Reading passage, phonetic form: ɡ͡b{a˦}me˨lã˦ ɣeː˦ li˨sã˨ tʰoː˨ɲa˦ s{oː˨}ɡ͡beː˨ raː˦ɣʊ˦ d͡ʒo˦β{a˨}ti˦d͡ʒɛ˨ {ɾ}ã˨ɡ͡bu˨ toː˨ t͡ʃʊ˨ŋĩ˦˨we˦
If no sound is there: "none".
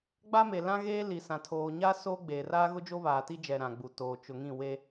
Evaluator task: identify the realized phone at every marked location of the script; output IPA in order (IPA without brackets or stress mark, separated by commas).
a˦, oː˦, aː˨, ɾ